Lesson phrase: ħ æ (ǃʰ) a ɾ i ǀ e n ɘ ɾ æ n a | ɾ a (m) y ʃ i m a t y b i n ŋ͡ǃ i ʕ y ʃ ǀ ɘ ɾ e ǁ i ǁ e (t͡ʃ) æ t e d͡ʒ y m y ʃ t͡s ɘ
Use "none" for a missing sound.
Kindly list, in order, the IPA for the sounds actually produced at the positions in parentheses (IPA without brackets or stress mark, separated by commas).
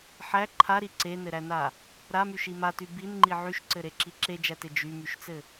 ǃʰ, m, d͡ʒ